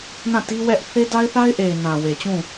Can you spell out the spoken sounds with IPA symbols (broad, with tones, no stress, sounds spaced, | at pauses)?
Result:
n ã˦˨ t i˦ w ɛ˦ ʔ θ e˦ d a˦ ɪ̯ θ a˦ ɪ̯ ʔ e˨ ɪ̯ n ã˨ w e˨ t͡ɕ ũ˦˨